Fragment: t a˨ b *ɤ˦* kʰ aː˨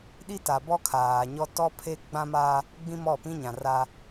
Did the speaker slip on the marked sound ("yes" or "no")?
yes